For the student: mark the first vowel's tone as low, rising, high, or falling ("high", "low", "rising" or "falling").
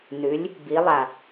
rising